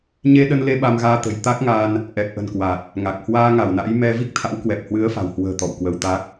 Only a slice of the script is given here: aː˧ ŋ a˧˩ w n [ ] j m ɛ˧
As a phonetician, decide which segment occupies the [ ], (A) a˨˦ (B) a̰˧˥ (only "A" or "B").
B